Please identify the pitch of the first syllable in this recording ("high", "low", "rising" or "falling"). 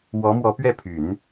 rising